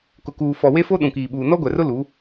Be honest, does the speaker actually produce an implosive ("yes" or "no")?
yes